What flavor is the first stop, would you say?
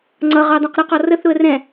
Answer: click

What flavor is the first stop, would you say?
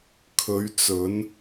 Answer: aspirated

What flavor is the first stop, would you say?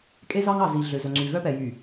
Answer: ejective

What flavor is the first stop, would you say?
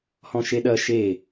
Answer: implosive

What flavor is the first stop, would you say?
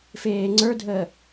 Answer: click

